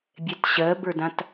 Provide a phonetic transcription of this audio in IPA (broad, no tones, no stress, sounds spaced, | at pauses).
bʲ ɛ t ɕ ɜ b ə˞ d ã t